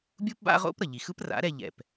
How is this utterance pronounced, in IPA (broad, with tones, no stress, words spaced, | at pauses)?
bʲu˥pba̰˥ʁo̰˥p ɾʌ˩ʎi˩xɯ˥p ra̰˩˥ɾɛ˧ʎɛ̰˩p